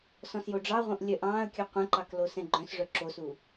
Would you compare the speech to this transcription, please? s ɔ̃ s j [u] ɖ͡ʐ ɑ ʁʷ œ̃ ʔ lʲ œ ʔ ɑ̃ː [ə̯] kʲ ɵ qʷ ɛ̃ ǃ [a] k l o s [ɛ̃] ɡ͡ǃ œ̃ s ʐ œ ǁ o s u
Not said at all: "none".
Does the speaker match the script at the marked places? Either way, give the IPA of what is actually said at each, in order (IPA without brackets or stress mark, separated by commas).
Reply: o, ə̯, ɑ, ɛ̃